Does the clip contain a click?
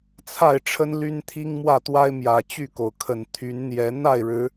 no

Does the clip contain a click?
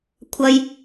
no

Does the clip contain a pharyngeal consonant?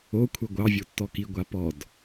no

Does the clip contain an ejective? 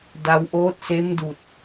no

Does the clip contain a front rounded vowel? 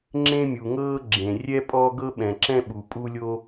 no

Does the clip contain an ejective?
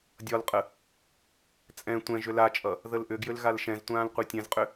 yes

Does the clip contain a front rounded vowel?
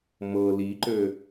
yes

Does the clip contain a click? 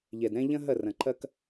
yes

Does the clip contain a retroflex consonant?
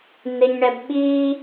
yes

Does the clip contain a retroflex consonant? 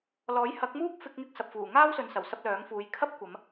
no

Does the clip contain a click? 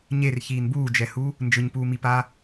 no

